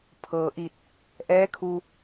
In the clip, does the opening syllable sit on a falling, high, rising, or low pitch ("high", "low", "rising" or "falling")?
low